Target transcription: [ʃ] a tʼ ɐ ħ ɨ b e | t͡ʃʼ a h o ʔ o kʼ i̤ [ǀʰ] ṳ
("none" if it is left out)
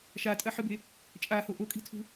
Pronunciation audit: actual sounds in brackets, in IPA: ʃ, tʰ

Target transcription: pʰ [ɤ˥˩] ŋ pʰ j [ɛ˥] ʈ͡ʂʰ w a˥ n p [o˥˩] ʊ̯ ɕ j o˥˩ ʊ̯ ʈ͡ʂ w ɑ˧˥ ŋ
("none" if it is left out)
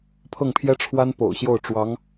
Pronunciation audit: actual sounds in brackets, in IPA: ɤ˥˩, ɛ˥, o̰˨˩

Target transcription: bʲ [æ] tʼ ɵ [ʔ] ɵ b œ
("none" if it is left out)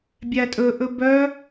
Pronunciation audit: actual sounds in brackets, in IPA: æ, ʔ

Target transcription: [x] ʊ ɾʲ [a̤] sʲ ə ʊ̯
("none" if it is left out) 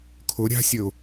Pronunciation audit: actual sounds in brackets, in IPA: kʰ, a̤

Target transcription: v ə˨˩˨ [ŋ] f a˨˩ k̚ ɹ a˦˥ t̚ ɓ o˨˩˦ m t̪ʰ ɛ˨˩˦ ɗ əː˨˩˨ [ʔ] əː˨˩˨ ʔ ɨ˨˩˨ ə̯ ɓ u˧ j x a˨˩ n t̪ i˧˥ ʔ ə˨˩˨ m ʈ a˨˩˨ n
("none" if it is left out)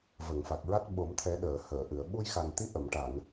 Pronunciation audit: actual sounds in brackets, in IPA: ŋ, h

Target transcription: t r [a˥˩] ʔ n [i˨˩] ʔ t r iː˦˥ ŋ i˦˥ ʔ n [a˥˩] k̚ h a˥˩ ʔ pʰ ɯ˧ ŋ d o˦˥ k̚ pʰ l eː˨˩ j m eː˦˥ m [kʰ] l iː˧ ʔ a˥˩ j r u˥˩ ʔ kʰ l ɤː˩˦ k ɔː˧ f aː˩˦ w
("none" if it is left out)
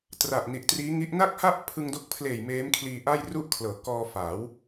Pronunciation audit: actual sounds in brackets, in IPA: a˨˩, i˨˩, a˥˩, kʰ

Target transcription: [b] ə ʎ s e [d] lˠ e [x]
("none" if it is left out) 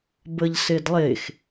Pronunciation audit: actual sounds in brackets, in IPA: b, d, x

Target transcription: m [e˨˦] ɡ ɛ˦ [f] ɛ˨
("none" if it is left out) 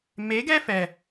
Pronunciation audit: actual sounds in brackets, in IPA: e˨˦, f

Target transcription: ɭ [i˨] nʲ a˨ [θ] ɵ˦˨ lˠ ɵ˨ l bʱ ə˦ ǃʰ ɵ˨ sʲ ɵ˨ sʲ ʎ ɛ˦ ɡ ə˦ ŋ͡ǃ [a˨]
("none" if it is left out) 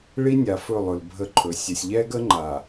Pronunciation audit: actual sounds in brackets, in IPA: i˦, f, a˨

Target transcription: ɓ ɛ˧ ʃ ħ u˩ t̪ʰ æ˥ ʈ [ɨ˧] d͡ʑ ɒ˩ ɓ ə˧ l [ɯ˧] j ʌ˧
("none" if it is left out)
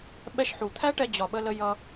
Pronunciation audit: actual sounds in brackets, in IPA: ɛ˧, ə˧

